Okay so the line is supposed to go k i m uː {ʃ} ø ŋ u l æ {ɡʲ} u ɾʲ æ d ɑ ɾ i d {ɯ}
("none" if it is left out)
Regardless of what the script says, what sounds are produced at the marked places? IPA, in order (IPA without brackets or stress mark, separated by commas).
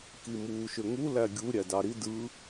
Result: ʃ, ɡʲ, ɯ